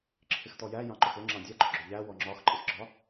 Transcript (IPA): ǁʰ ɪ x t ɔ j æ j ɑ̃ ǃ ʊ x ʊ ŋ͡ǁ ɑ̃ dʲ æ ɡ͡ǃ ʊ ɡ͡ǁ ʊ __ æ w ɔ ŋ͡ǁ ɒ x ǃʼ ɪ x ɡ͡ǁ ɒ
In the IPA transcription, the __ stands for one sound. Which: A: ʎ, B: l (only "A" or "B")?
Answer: A